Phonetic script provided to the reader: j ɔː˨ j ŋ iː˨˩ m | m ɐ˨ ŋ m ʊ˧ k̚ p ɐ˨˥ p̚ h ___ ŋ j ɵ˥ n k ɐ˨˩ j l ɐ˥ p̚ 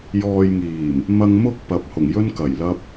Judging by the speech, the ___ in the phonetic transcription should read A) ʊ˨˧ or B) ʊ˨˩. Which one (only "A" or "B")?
B